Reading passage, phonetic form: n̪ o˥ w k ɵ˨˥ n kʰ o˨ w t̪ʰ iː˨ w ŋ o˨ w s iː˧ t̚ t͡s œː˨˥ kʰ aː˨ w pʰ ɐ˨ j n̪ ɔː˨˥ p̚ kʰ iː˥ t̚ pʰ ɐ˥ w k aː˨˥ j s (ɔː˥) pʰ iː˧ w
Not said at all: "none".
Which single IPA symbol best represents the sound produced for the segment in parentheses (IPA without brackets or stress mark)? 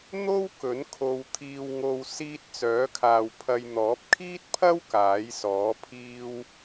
ɔː˨˥